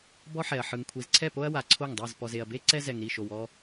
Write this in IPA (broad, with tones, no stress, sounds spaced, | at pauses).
b ɔ˦ ħ ɛ˨ ɐ̯ ħ ɯ˨ ŋ kʷʰ i˨ z ǀʰ ɛ˦˨ p o˦ ɐ̯ w a˨ ǀʰ o˦˨ ŋ dˤ ɯ˦˨ z p ɔ˨ z e˨ ɐ̯ b e˦ ǀ ɛ˦ z ɛ˨ ŋ ɾ i˦˨ ʃ o˨ w ɔ˦